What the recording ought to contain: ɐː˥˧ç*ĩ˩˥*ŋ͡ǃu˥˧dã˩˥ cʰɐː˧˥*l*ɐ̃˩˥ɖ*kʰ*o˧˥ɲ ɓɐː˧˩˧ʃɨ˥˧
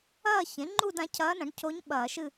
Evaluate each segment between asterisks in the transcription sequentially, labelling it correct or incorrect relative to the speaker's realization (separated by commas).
incorrect, incorrect, incorrect